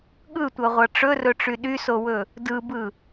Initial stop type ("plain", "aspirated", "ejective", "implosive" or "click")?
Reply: implosive